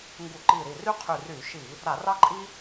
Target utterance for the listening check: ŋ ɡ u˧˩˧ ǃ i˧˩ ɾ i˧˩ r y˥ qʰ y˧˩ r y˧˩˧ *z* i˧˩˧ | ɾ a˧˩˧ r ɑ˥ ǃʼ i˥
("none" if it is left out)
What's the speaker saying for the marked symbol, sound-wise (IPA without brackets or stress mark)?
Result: ʃ